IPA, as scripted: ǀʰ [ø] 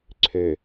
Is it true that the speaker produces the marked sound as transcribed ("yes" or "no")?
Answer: yes